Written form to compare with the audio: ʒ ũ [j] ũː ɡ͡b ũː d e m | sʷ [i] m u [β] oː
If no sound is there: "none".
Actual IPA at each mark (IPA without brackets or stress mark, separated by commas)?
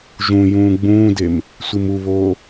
j, i, β